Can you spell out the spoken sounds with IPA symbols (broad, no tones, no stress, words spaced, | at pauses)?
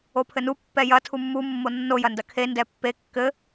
opʰɘnu pːɛjɐ tʰumːu mːonːo jɐndɐkʰe ndɛpːe kːɘ